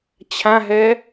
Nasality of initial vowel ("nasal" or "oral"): nasal